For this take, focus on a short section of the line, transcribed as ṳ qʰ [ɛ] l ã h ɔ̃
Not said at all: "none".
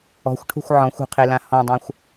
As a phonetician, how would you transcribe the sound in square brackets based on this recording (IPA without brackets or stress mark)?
e